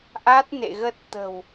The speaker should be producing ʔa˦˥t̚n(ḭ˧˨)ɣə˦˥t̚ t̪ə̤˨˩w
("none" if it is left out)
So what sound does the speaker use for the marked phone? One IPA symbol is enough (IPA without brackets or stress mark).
ḛ˧˨